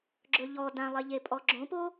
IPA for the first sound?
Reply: ɡ͡ǁ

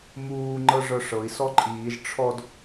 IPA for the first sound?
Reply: m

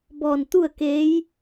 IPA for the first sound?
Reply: b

